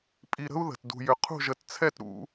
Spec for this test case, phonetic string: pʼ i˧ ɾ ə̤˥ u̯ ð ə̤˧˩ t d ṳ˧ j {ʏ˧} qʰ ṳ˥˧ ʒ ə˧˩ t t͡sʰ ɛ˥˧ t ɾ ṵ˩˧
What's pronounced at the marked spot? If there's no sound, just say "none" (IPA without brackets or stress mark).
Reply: ʏ˧